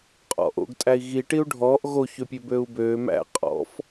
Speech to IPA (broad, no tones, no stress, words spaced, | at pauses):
qʼɔ̰ʔo̰ɡ tʼæi̯ɣi ʈiu̯ɖʱɔːʔ ɣo çøpʲøbøu̯bøː mæ̰ qʼɔ̰f